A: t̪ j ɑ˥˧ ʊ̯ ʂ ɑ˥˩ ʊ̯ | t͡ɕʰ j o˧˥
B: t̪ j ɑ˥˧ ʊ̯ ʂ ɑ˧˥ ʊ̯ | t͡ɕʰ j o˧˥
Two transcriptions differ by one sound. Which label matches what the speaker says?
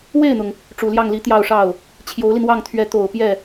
A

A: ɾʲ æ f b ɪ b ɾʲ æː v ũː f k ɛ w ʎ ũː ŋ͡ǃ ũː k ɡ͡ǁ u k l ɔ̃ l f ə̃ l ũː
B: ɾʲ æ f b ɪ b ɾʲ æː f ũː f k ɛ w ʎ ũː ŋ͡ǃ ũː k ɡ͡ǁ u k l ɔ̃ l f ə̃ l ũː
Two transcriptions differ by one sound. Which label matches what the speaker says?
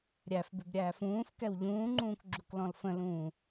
B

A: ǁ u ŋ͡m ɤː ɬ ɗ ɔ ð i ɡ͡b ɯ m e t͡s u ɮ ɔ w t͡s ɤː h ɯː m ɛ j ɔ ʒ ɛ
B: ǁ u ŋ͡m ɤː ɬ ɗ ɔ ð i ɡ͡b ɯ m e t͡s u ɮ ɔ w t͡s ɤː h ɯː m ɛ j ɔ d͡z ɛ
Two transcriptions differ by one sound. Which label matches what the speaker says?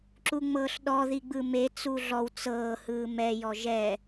A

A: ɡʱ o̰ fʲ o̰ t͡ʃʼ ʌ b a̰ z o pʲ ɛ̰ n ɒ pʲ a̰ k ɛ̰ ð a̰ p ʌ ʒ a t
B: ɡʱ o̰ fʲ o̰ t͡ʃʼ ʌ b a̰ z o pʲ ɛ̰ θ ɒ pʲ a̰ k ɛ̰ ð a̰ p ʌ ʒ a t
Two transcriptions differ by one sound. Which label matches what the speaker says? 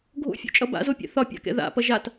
B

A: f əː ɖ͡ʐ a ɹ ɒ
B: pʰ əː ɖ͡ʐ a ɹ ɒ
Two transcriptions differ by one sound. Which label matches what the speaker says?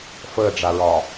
A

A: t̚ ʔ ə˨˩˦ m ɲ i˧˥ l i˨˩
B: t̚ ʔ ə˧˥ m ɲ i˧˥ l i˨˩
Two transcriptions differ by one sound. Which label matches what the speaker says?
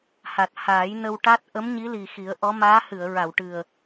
B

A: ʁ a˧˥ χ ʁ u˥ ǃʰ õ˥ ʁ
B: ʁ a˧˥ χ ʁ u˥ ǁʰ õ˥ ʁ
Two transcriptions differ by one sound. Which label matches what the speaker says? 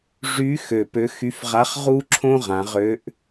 B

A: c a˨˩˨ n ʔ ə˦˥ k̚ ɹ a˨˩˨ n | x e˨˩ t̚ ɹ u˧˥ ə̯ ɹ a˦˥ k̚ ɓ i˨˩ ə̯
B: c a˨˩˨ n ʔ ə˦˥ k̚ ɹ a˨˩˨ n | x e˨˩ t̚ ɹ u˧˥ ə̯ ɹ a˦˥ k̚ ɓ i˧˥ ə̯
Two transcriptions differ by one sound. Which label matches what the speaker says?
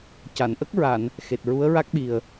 A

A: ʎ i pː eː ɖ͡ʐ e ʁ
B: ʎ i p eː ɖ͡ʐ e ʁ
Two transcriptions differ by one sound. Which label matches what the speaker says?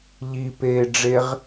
B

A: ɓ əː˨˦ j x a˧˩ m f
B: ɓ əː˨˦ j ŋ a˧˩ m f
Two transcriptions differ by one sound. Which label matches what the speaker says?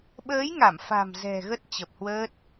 B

